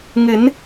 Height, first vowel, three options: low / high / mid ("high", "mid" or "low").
high